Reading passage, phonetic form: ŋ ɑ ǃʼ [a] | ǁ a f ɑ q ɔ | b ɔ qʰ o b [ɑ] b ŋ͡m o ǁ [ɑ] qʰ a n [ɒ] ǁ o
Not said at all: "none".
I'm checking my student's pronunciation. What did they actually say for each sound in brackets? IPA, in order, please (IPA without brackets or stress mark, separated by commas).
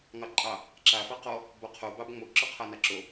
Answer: ɑ, ɑ, ɔ, ɑ